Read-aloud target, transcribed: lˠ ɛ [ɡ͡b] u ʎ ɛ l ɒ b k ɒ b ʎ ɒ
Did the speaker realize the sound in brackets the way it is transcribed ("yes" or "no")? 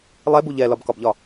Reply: no